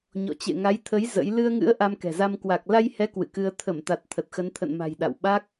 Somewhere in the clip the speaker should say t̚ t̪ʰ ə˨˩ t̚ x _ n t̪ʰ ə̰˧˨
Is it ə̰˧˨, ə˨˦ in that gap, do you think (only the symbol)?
ə˨˦